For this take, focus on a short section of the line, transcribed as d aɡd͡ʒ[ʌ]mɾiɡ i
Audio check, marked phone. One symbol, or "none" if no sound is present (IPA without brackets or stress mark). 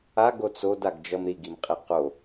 ʌ